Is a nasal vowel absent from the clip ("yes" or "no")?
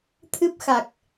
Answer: yes